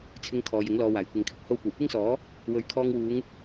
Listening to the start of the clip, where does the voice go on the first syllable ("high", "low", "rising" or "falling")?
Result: high